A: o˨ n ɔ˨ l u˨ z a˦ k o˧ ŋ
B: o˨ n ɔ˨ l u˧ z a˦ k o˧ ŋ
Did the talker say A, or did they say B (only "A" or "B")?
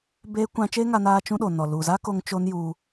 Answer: A